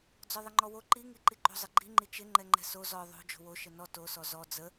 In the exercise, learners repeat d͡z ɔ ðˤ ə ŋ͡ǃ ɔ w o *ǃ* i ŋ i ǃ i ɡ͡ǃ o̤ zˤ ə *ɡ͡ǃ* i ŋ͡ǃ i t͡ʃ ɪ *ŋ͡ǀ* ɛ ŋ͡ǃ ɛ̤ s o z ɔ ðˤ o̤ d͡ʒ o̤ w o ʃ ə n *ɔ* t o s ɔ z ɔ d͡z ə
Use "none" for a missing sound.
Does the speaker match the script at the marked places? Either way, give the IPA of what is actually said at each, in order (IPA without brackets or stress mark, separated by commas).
ǃ, ɡ͡ǃ, ŋ͡ǃ, ɔ